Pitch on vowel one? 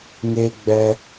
high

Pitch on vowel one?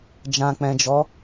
low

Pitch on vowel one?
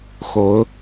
rising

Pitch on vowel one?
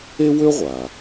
high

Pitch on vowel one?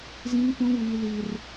high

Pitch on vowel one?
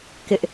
high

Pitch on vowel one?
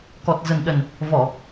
low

